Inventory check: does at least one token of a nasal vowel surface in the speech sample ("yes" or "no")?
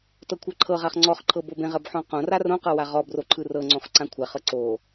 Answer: yes